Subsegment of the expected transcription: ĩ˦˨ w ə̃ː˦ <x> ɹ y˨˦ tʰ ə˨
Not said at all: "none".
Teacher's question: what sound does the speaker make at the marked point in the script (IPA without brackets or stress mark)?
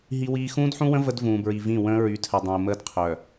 none